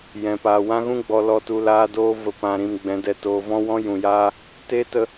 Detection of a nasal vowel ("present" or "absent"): present